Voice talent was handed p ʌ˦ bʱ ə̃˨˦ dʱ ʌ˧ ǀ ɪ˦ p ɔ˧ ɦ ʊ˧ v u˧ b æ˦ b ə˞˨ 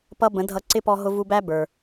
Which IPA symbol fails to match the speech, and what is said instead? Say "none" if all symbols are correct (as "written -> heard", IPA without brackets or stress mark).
bʱ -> b